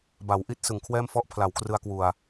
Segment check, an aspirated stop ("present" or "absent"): present